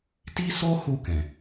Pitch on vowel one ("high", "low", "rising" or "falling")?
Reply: high